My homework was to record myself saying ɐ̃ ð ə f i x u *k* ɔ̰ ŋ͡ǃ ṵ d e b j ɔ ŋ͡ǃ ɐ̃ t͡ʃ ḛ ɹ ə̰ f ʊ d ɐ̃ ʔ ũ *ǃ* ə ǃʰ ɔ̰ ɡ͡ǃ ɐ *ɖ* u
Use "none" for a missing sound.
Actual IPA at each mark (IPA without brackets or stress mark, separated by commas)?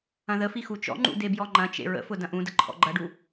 t͡ʃ, d, ɖ